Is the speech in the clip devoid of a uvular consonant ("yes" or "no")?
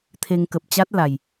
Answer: yes